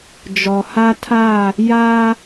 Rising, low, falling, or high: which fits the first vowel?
low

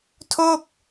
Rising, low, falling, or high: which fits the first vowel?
falling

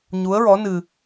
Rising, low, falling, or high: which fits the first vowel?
rising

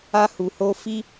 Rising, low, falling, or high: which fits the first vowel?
high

